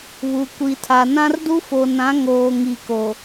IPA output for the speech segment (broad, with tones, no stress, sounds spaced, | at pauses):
β u˨ kʷ i˨ tʰ a˨ n ã˦ r d u˦ f o˨ n ã˨˦ ŋ oː˨ ŋ i˨ k o˨